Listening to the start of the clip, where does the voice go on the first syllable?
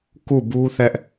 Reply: falling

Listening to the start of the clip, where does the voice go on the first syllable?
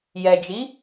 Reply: low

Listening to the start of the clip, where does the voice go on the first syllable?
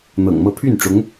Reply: low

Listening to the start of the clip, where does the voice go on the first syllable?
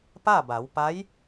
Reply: falling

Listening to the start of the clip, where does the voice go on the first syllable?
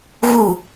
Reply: falling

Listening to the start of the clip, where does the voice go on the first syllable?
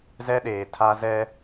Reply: high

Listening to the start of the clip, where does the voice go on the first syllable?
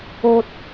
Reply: low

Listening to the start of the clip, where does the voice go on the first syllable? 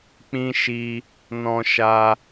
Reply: high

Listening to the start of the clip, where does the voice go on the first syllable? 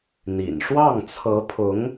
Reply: low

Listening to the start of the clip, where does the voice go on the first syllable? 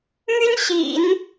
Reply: high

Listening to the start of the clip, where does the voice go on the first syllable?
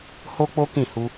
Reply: high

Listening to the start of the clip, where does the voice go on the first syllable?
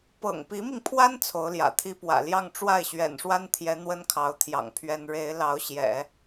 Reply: low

